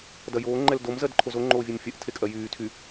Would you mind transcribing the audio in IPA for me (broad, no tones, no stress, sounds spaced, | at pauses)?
d ɐ j oː ŋ͡ǃ ɛ l d o m z ɜ d ǃʰ o z o ŋ͡ǃ oː vʲ e m fʲ ɐ ʔ tʰ e kʼ ɜ j yː tʰ y